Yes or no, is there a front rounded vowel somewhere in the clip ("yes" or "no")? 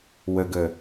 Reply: no